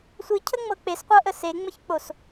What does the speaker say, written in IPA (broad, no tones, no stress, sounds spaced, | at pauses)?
sʷ i cʰ ə ŋ͡m ɤ k͡p e s qʷ ɤ ʔ ə s e ŋ͡m ə ç k͡p o s